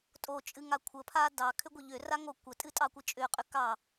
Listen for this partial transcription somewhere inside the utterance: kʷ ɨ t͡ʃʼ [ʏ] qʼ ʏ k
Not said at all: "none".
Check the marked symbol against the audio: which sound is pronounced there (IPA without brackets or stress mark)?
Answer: ʏ